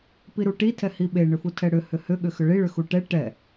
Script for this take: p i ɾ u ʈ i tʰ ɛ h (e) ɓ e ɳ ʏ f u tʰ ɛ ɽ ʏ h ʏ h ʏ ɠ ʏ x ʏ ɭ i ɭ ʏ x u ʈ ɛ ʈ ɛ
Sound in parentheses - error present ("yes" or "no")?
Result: yes